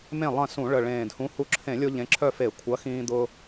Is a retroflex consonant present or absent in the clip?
present